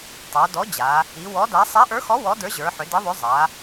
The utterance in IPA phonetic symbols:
tˤə˞˩˧dɔ˨˥ d͡ʑa˩˧ | i˩˧ wɔ˨˥da˨˥ sˤa˨˥ʔə˞˨˥xɔ˨˥ wɔ˨˥də˞˨˥ʑə˞˩˧ħʏ˩˧ di˨˥ðˤʏ˨˥ zˤa˩˧

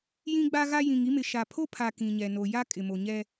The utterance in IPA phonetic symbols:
jĩ˦ɡ͡ba˦ɣa˦ jĩ˨ŋi˦mɪ˨ ʃa˨pʰo˦pʰa˨ kĩ˨ɲɛ˨ no˨ ja˦ kʼɪ˨mo˨ɲɛ˦

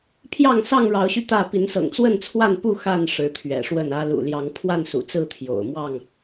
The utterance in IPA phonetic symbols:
pʰjɑ˥˨ŋsɑ˥˨ŋɻɑ˨˦ʊ̯ɕy˧ t̪ä˥˨ pi˨˦nsɤ̰˨˩ŋ t͡swə˥˨nt͡sʰwa˥˨npu˥˨ xa˥˨n ʂɻ̩˨˦t̪ʰɥɛ̰˨˩ʂwə˥˨nä˦ lṵ˨˩ljɑ˨˦ŋ pʰwa˥˨nsṵ˨˩t͡sɹ̩˥˨t̪ʰjo̰˨˩ʊ̯ mwɑ˥˨ŋ

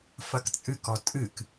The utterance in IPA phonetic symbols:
fɐkt͡sʼɨkɔ tʼɨk

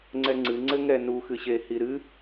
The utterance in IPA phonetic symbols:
ŋ͡ǀɛŋ͡ǀɨ ŋ͡ǀɘŋɛ nuxɨɕehi ɾɨ

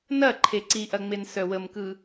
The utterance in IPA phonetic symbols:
nɐ ǃʰeǀiʔɐŋ͡men sœwəmkɯ

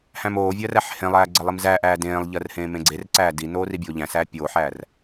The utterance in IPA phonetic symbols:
hæ̃moːvʲɜ ræħhẽlˠæː ɡ͡ǀɜlˠimzæʔæː dẽːlˠʎɜr hẽːmẽɡ͡ǀerǀæː dinoː ribʲoːʎæ̃sæː pʲoːħæːr

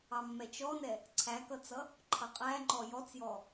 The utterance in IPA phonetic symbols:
ɑmːɛt͡ʃɔnɛ | ǀʰækʌt͡sʌ | ǃʰʌqʼæŋ͡ǃɔ jɔt͡sjɔ

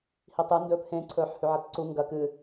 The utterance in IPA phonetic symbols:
hitˤɨ ndɵːphẽ ǀʰɵːħhʉʕɐtǀu ŋɡɐ kɨ

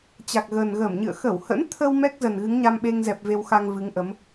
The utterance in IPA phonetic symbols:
t͡ɕa˨˩k̚ɣəː˨˩nɣəː˧˩mɲɨ̰˧˨ə̯ xə˧˩whə̰˧˥nt̪ʰə˧w mɛ˦˥k̚zə˨˩n ɣɨ˨˦ŋɲa˧mɓe˧ŋzɛ˨˩p̚ ve˧wxa˧ŋvɨ˨˦ŋʔə˨˦m

